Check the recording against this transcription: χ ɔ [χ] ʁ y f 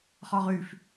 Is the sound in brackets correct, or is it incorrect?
incorrect